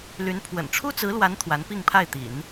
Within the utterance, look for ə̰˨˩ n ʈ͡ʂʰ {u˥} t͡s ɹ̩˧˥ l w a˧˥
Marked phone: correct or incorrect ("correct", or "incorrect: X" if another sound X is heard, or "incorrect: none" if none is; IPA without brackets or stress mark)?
correct